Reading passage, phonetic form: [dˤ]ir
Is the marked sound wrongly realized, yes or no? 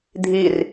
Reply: yes